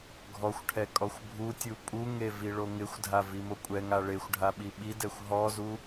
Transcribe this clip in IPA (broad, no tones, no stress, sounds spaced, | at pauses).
ɡʱ ɔ xʷ ʈʰ ɛ kʼ ɔ xʷ bʱ u tʲ u pʼ u ŋ e v i ɭ o ŋ ɪ xʷ dʱ a v i m o kʷʼ ɛ ŋ a ɭ e xʷ ɖʱ a ɓ i ɓ i d ɛ xʷ ɦ ɔ z u